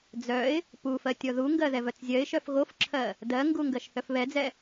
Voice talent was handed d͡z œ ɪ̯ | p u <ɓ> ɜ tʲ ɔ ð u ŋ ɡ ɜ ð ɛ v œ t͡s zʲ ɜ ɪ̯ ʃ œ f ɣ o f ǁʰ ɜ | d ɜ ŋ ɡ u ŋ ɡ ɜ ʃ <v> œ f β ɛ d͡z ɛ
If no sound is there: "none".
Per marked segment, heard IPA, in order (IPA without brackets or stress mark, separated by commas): f, θ